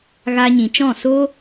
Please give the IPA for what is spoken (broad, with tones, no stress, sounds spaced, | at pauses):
ɣ a˧ ɲ ĩ˨ t͡ʃ ɔ̃˦˨ s o˦